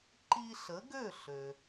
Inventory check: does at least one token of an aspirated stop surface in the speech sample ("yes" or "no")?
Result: no